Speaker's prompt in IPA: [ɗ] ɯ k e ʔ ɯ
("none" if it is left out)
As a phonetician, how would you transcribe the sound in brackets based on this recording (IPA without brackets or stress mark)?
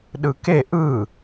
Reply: ɗ